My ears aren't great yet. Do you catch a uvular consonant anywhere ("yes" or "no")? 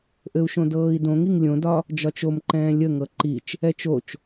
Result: no